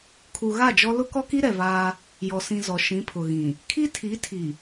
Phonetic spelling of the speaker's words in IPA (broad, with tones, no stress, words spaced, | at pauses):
kʰu˨ ɣa˦˨d͡ʒɔ˦ lʊ˦kɔ˦ki˦ ɾɛ˨vaː˦ | jɔ˨ sĩ˨ zɔ˨ ʃĩ˨˦pʰʊ˨ɣĩ˨ | kʰi˦tʰi˨˦tʰi˨